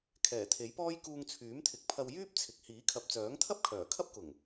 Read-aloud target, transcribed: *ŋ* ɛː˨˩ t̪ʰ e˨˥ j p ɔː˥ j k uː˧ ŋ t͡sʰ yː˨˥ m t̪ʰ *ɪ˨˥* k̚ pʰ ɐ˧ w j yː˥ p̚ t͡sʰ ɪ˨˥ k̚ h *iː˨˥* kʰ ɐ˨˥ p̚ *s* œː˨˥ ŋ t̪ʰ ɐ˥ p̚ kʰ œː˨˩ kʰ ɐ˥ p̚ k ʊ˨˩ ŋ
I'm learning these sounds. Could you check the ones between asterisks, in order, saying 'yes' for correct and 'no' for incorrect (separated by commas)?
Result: no, yes, yes, no